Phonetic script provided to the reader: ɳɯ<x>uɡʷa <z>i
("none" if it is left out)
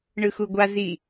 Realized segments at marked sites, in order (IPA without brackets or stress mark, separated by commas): x, z